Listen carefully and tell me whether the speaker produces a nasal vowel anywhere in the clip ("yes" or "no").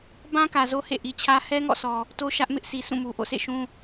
yes